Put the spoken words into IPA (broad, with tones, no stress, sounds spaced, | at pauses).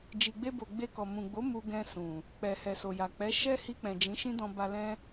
d͡ʒ i˨ ɡ͡b e˧ b o˨ ɡ͡b e˧ k ɔ˨ m ũ˨ ɡ͡b o˨˦ m u˧ ɡ ɛ̃˧ s ũ˨ | k͡p ɛ˨ h ɛ˨ s o˨ j a˨ k͡p ɛ˨˦ ʃ ɛ˦ h i˧ k͡p ɛ̃˨ d͡ʒ ĩ˨˦ ʃ ĩ˦ d ɔ̃˧ b a˧ l ɛ̃˦